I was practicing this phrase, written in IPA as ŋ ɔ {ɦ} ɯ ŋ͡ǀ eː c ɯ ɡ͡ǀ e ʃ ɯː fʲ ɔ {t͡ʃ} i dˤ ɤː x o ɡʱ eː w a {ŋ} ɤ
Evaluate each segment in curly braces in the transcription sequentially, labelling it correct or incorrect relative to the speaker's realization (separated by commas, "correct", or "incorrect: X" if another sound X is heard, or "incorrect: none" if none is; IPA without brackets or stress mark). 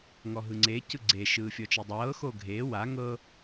correct, correct, correct